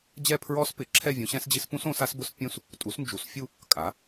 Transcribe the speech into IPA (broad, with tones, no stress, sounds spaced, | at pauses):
d͡ʑ ɛ˥˧ pʰ ɹ ɔ˦˥ s p ɪ˨˥ ǁʰ ɛ˥˧ vʲ ũ˨˥ ɕ ɛ̃˦˥ s d͡ʑ i˦˥ s p ũ˦˥ s õ˨˥ s a˦˥ s b ʊ˦˥ s pʲ ũ˥˧ s | tʼ u˨˥ s n d͡ʒ u˨˥ s fʲ u˥˧ | kʼ a˨˥